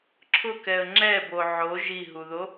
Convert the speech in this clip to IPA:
ǁʰ ʊ k ɛ ə̯ ŋ͡ǁ ɛ b o ʕ o ʒ i ɦ u ð o

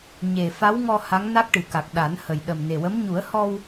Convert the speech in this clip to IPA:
ɲ e˨˩ f a˧˥ w ŋ ɔ˧ h a˧˥ ŋ n a˦˥ k̚ ʈ ɨ˨˩ k a˨˩ k̚ ɗ a˨˩˦ n h ə˨˩ j ɗ ə˨˩ m n e˨˩ w ə˧˥ m ɲ u˨˩˦ ə̯ h ɔ˧ w

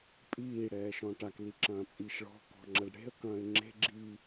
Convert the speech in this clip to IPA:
pʼ iː ɽ ɛː ʃ ɔ̃ ʈ a k l i ǁ ɐ̃ː t͡sʼ iː ʃ ɭ ɔ̤ k ɔ̤ ŋ͡ǁ ɐ ɖ ɽ e̤ ə̯ k ɐ̃ː ɪ̯ ŋ͡ǁ e̤ ɡ͡ǁ iː

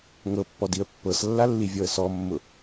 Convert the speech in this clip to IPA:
ŋ ɤ pː ɔ d i ə̯ pː ɤ s lː a lː i vʲ ɔ ə̯ s ɔ mː ʊ

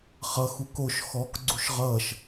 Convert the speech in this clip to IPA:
χ ʌ x u k o ʃ x ɔ k ɡ͡ǀ u ʃ ʁ ʌː ʃ

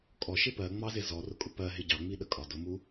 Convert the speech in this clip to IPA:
kʼ ɔ ʃ ɪ p ɜ ŋ͡m ɑ z ɪ z ɔ r ʊ kʼ ʊ p ɜ ɦ ɪ ɟ ɑ ŋ͡m i ɗ ə kʼ ɒ d ʊ m u

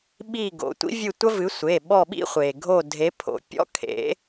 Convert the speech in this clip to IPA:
ɓ i˦˨ ɡ o̰˩˧˩ tʷ ḭ˥ vʲ ɨ˦˨ tʷ ɐ˥ v ɨ˨˥ sʷ e˩˧˩ ɓ ɔ˦˨ ɓ ḭ˥ χʷ e˩ ɡʱ o˦˨ dʱ e˨˥ pʰ o̰˩˧˩ pʲ ɔ̰˥ kʰ ḛ˨˥

